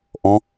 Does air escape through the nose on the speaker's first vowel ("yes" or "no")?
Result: yes